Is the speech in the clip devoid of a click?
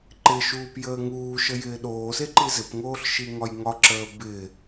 no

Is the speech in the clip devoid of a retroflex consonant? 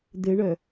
no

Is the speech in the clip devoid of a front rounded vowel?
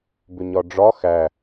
no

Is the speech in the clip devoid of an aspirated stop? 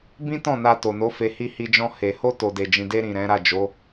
yes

